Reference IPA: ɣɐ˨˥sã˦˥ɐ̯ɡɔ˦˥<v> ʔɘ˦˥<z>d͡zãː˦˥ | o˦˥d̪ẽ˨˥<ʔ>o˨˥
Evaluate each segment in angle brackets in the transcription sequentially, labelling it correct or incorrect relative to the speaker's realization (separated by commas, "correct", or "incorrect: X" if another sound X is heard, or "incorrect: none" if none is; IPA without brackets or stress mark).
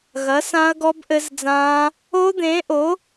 incorrect: b, correct, correct